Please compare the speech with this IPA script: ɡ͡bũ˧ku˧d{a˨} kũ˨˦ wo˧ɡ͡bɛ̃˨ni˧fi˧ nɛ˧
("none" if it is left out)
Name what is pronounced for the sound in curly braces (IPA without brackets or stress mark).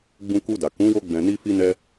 a˨